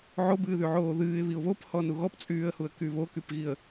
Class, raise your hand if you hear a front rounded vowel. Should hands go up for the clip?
yes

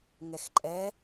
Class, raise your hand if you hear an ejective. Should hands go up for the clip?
yes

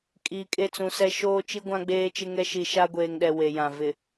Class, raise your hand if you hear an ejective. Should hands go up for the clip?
yes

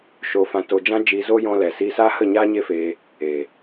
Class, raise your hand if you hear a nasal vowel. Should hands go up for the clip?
yes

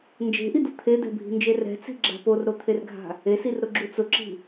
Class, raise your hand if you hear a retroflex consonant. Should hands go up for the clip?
no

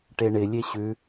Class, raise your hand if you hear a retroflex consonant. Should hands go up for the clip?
yes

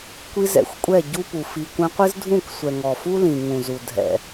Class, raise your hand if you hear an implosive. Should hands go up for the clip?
no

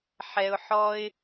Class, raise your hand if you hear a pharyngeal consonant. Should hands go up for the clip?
yes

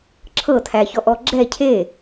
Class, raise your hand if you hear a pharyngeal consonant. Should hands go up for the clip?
no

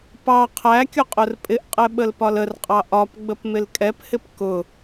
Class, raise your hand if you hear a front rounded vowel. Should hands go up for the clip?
no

